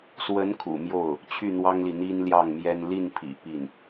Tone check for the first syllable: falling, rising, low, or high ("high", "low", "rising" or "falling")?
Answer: rising